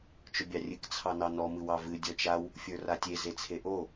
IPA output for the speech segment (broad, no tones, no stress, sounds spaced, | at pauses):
t͡ʃ ʊ bʲ ɑ rʲ ɨ k t͡sʰ ɑ n ɑ n ɔ m ɨ w ɑ v ɨ dʲ ɔ t͡ʃ a w | fʲ ə˞ r a tʲ e z e t͡sʰ e ʔ o